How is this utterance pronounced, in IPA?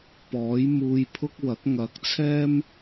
p ɔː˨˥ j m uː˧ j pʰ ʊ˥ k̚ w ɐ˨˥ k̚ ŋ ɐ˨˥ k̚ t͡sʰ ɛː˥ m

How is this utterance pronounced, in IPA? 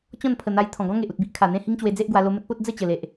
t͡ɕ ɔ̃˥˧ n pʰ ə˨˩ n̪ a˧ j t̪ʰ ɔ̃˨˩ ɡ ɔ̃˦ ŋ e˨ ʔ u˨ t̚ b i˦ ʔ kʰ a˨˩ n̪ ẽ˥˧ h i˦ ŋ t͡ɕ w e˧ d͡z e˦ ʔ ɡ w a˧ l o˧ m ə˦ t̚ p o˦ t̚ d͡z ə˥˧ t͡ɕ ə˨˩ l e˨ ʔ

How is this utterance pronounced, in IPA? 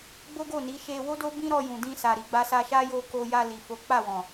ɡ͡b o˦ ɡ o˦˨ n i˨˦ ʃ e˧ w o˦ d o˦ b ĩ˦ ɾ ɔ˧ j ũ˨ d ĩ˧ s a˨ ɾ i˨ ɡ͡b a˧ s a˧ ʃ a˦ j o˧ k o˧ j a˧ l i˨ f o˨˦ k͡p a˦˨ w ɔ̃˨

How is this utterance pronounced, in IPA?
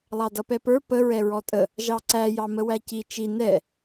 lˠ ɑ d ʌ p ɛ p ə˞ p ə ɹ ɛ ɹ ɔ tʼ ə | ʒ ɑ ǀ æ j ɑ m ə w æ c i t͡ʃ i n ɛ

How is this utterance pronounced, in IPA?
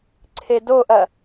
ǀʰ e d o ʔ ɐ

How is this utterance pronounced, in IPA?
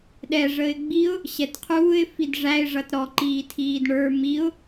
ɗ ɛ ʐ ə ɪ̯ ɡ͡b i ʊ̯ | ɕ ɛ t qʰ uː ɪ̯ f i d ʐ æ ɪ̯ ʐ ʌ t ɾ ɔ ǃ iː tʰ iː d ɳ ə˞ m i ʊ̯

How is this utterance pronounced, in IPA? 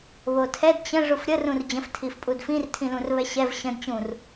β o tʰ ɛ d t͡ɕ ə̃ ʐ u f ɾʲ ə r ũ r d͡ʑ ə̃ f tʰ i f pʼ u d f ĩ r tʰ ĩ l ũ r β ɛ ɕ ɛ v ɕ ə̃ d t͡ɕ ũ r

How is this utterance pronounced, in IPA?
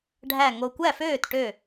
ɖʱ æ˨˩ ŋ o˨˩ kʷ æ˥˩ f øː˥˩ t ʈ ø˥˩

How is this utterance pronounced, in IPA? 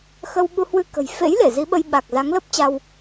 x ə˧ w ɓ u˧ h w ɨ˧ k ə̤˨˩ j f ḛ˧˥ j l e˧˩ z i˨˦ ɓ ə˧ j ɓ a˨˩ k̚ z a˨˦ ŋ l ə˦˥ p̚ t͡ɕ a˧ w

